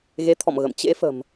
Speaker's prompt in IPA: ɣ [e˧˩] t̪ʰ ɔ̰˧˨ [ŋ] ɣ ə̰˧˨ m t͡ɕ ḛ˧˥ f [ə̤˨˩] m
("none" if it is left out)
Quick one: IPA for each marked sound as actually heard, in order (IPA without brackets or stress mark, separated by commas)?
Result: e˨˦, m, ə̤˨˩